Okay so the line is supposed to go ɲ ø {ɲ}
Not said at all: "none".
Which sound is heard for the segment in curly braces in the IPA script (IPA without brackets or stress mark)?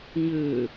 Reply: none